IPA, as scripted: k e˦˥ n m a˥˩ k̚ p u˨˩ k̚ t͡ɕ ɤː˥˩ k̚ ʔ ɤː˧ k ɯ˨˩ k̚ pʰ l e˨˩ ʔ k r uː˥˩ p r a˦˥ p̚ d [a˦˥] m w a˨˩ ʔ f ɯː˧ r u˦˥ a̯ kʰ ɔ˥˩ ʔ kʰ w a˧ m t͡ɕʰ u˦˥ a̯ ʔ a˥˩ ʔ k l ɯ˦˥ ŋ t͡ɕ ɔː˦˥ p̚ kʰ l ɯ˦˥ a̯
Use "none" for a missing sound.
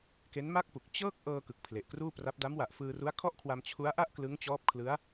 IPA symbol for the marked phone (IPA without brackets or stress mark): a˦˥